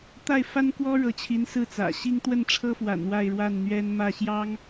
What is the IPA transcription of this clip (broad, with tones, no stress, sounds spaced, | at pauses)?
t̪ a˥˩ ɪ̯ f a˥ n k w ɔ˥ ɻ ɤ˧˥ t͡ɕʰ i˧˥ n s ɹ̩˥˩ t͡s ä̰˨˩ ɕ i˥ ŋ t̪ w ə˥˩ n ʈ͡ʂʰ ɤ˥ f w a̰˨˩ n w a˥˧ ɪ̯ ɻ w a˥˩ n n̪ ɥ ɛ˥ n m ä˥˩ ɕ j ɑ˥ ŋ